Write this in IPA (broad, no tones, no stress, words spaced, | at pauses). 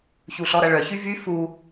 çuɬɔɾɐɭœ çyvy fu